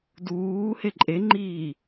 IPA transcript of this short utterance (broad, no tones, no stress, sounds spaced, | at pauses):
d uː h e ǃʼ e ŋ͡ǃ iː